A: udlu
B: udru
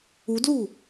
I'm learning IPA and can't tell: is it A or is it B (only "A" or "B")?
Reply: A